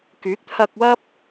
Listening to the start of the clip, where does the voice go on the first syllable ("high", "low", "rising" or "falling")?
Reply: rising